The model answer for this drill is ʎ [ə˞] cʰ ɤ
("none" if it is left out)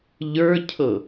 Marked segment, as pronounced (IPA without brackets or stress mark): ə˞